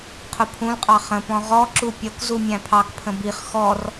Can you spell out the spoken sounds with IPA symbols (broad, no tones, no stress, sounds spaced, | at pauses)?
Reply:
qʰ ʊ pʰ ũ l qʼ ɑ χ ə̃ p ɔ̃ ʁ ɔ ǁ u pʲ ʌ k z u mʲ æ̃ pʰ ɑ k pʰ ə̃ b i χ x ɔ r